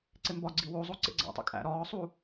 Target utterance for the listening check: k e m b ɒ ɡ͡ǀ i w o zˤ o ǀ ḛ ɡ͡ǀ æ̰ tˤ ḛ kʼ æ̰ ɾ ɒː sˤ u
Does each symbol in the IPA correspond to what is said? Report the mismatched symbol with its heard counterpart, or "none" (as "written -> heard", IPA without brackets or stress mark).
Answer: k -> ǀ